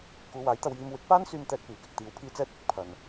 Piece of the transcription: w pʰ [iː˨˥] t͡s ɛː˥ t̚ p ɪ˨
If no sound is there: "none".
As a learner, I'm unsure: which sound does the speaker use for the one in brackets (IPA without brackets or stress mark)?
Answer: iː˧